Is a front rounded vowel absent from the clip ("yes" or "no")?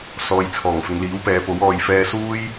yes